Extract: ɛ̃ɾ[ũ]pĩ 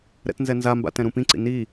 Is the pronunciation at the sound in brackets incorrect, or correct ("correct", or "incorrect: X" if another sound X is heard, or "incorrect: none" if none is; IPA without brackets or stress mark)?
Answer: correct